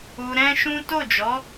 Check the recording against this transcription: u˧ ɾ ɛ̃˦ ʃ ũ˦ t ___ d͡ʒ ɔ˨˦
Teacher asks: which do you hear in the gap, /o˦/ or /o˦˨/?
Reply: o˦˨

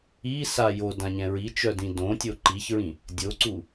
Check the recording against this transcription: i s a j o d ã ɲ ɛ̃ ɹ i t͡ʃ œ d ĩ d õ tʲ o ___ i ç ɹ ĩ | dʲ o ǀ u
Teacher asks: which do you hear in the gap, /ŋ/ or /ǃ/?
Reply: ǃ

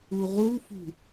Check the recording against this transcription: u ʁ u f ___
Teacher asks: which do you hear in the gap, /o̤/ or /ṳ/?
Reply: ṳ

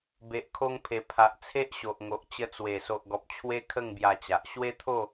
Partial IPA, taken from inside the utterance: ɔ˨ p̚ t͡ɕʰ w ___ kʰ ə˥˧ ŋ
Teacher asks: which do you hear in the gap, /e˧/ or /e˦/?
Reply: e˦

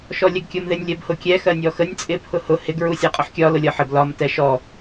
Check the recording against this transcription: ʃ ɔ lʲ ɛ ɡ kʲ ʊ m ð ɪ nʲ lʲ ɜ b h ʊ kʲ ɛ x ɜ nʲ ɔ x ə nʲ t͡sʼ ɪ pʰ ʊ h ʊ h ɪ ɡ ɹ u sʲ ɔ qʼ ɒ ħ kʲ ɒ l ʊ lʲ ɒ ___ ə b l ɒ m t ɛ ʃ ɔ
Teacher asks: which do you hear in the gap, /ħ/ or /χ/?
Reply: ħ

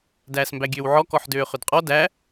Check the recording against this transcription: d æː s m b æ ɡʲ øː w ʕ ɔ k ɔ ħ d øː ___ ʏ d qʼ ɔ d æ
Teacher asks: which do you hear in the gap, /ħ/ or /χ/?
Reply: χ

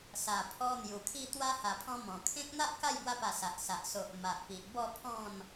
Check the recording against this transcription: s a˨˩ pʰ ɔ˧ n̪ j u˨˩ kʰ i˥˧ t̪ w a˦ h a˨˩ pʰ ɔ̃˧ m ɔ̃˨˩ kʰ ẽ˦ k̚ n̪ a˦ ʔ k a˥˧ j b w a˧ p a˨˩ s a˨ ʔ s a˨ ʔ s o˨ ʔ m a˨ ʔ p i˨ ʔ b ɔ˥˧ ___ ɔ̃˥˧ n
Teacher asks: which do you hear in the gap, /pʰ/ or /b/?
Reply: pʰ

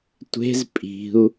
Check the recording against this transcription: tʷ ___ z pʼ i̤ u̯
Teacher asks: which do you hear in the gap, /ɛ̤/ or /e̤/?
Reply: e̤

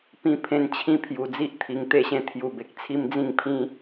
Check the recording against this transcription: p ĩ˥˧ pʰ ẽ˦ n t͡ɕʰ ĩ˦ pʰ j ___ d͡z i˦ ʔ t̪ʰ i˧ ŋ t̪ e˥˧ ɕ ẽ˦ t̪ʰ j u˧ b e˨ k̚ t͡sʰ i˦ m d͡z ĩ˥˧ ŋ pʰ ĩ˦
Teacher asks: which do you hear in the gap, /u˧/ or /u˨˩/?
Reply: u˧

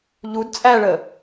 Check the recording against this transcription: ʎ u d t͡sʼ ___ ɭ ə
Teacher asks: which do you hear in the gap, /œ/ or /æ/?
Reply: æ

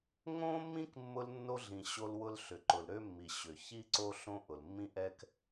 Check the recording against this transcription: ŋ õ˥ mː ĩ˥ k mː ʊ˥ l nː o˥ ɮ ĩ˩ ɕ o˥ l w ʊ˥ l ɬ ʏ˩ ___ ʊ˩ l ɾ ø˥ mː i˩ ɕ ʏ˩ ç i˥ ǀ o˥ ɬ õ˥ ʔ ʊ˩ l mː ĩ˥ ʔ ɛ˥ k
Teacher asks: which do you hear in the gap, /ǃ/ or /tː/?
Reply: ǃ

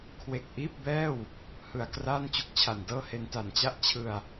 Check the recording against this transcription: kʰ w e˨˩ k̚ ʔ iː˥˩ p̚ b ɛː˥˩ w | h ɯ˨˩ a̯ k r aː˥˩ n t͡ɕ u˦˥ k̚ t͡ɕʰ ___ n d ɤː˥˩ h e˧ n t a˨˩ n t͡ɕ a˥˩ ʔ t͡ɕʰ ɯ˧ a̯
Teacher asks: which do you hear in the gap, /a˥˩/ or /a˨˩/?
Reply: a˨˩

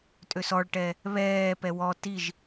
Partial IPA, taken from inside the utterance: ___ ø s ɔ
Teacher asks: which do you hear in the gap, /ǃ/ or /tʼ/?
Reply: tʼ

